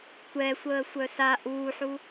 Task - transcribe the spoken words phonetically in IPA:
tʷ ɛ sʷ əː sʷ œ s a ʔ uː ħ u

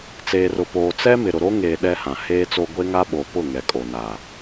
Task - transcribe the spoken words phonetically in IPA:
t͡s eː˨ r ʊ˨ p oː˨ t͡s ɛ˦ m ɪ˨ ɾ ʊ˨ ɾ o˦ ŋ eː˨ ɗ ɛ˦ h ã˨ h eː˦ t͡s o˦ ɡʷ e˦ ŋ a˦ ɓ o˨ p ʊ˦˨ ŋ ɛ˨ kʼ o˨ n aː˨

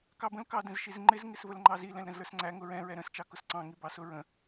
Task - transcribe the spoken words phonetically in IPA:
k ɑ b ə̃ l k ɑ d ə̃ z ʃ i z ŋ͡ǃ ɪ z ŋ ɪ s v ə l ŋ͡ǃ ɑ z i l ɛ̃ l ɾ ə̃ z l ə˞ s ŋ͡ǀ æ ŋ ʊ ɹ ɛ̃ ɹ ɛ ɾ ə̃ s t͡ʃ ɑ k ʊ s ǀ ɑ̃ ŋ i b ɑ s ʊ ɹ ə̃

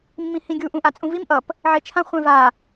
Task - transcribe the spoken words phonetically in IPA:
mː ĩ h ĩ ɡʲ u ʔ ũ ʔ a t͡sʼ ũ v i m ʔ ʌ p | ʕ e t͡ʃʰ ã χʷ ɛ̃ v a

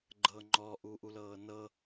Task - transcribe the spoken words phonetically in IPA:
ɡ͡ǃ ɤ ŋ͡ǃ ɔ ʔ u ʔ u l ɤː n ɤ

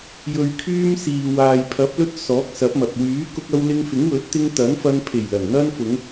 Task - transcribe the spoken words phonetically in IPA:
j ɵ˨ ɥ kʰ yː˧ m s iː˨ w aː˨ j pʰ ɐ˨˥ p̚ l ɵ˧ t̚ s ɔː˨˥ k̚ s ɐ˨˥ p̚ m ɐ˨ p̚ w yː˨˥ k ʊ˧ k̚ ɐ˧ w l ɪ˧ ŋ f ɪ˨˥ ŋ w ɵ˨˥ t̚ t̪ ɪ˧ ŋ t̪ ɐ˨˥ n f ɐ˧ n pʰ e˨˩ j l ɐ˨˩ n n̪ ɐ˧ n f ʊ˨˧ ŋ

